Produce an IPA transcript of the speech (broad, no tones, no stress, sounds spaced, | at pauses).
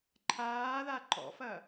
ǃʰ aː ð a ǃ ɔ̰ f ɐ